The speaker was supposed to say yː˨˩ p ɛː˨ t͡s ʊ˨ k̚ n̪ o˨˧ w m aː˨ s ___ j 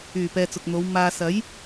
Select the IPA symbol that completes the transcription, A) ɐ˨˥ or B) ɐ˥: A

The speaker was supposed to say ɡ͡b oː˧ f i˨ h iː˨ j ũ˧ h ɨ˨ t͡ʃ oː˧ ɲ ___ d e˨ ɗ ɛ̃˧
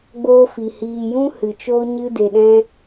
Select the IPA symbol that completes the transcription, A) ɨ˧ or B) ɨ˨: A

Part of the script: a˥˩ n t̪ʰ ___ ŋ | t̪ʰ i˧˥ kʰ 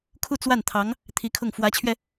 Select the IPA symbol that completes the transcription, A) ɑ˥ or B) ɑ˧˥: B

